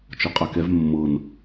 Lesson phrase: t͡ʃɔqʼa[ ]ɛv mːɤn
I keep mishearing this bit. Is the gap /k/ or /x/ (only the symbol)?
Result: k